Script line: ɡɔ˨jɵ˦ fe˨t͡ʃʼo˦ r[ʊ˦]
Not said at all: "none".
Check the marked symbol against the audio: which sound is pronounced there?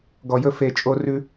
ʉ˦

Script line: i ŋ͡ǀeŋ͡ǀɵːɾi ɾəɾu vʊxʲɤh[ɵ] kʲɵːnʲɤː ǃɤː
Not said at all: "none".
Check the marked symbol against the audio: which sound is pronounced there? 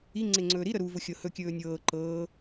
ɵ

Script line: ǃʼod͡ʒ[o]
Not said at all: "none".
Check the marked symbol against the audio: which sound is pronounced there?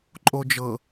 ɤ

